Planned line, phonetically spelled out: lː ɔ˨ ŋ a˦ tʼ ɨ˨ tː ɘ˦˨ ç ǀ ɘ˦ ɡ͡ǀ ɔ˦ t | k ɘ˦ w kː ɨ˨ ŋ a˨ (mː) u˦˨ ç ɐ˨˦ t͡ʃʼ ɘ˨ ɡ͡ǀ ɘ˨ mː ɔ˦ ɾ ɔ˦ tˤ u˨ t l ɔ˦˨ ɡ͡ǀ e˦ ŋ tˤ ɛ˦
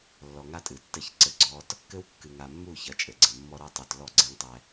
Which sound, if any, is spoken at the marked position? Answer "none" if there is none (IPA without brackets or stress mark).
mː